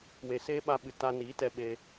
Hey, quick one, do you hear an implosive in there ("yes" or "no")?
yes